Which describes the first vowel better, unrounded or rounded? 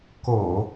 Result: rounded